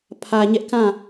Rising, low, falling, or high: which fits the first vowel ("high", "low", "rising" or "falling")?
low